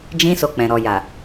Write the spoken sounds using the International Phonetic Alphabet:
d͡ʒĩ˦so˧k͡pɛ̃˨ ɾɔ˨ja˨

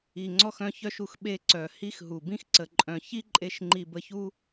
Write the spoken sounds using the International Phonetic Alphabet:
i˨ŋ͡ǀɔ˧xœ̃˧ çœ˧ʃu˨x ɓe˧ǀœ˨ hi˧xɦu˨ bĩ˦x ǀə˧ǃʼœ̃˧ çi˦ǃʼe˧ʃ ŋ͡ǃi˧bə˧çu˦

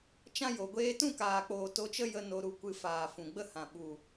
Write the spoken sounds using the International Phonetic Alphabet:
t͡ʃã˦jo˨ ɡʷeː˧tũ˦˨kaː˨k͡poː˨ to˧t͡ʃə˦ jə˧ no˧ɾu˧kʷɨ˧ faː˨fũ˨ɡ͡bə˦hã˨ ɓu˨

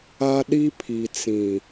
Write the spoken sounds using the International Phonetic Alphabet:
a˦ɗi˦pʰi˨t͡sĩ˨

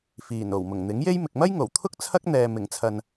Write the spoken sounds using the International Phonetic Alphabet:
fiː˨˩n o˨˩wmʊ˨˩ŋn̪ɪ˨˥ŋje˥j mɪ˨k̚mɐ˥jŋo˨˩wt̪ʰʊ˥k̚ t͡sʰɐ˥k̚n̪ɛː˨mɪ˨˩ŋt͡sʰɐ˨n

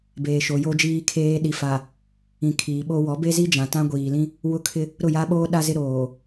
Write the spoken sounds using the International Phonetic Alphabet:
beː˨ʃo˨jo˦d͡ʒiː˦ kʰeː˦ ɗi˨fa˨ | ĩ˨ kʰiː˨ ɓo˦ wɔ˨˦be˦zi˦ d͡ʒã˨tã˦ɡʷiː˨lĩ˦ | wʊ˦ kʰɪ˦ | ɾʊ˦˨ja˦ɓoː˦ ɗa˦zɪ˦ ɾoː˨

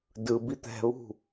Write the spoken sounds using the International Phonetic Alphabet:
dɯbi t̪ɛ̤βṳ

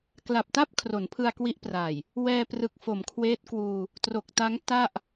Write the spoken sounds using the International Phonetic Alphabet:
kla˨˩p̚ta˥˩p̚ kʰro˩˦npʰɯ˧a̯kwi˦˥ʔpraː˨˩j | wɛː˧prɯ˨˩k̚ fo˩˦mkʰweː˦˥t̚kwuː˧ | tro˨˩k̚ta˦˥ŋ ta˥˩ʔ

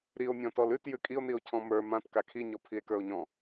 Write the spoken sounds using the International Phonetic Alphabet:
ɾio̯mʲɔ̃ tɔlʉt jʉkʼio̯nio̯ cʰɔ̃mə˞ mãt kakʰiɲɔ pʰie̯kə˞o̯ɲɔ̃

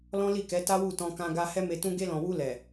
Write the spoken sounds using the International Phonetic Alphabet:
lɔ̃˦li˦˨kɛ˨˦ ta˦wu˦˨tɔ̃˧kã˧ ɡa˧ hɛ˦me˧tũ˦ ɡe˧lɔ̃˨wu˧ lɛ˨

